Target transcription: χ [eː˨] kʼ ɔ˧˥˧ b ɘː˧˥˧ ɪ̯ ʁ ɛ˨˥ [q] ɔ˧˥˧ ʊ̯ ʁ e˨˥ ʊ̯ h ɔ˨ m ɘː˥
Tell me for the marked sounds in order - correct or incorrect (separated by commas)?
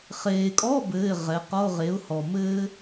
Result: correct, correct